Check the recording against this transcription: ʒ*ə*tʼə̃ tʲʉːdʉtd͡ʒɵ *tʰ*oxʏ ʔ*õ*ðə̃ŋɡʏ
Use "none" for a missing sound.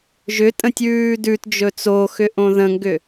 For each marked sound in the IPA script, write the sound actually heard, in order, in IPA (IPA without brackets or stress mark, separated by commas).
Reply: ʏ, t͡s, õ